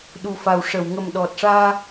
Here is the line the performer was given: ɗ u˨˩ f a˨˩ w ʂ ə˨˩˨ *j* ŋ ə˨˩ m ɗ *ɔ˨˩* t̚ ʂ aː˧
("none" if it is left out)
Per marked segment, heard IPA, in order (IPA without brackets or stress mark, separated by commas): w, ɔ˨˩